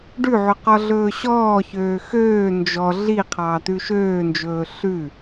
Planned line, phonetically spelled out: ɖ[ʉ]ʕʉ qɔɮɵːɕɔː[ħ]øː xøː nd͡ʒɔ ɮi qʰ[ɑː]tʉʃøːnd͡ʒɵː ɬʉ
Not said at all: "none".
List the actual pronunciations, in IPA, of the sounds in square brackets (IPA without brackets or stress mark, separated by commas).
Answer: ʉ, ç, ɑː